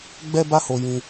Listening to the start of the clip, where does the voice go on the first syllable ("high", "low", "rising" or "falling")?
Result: high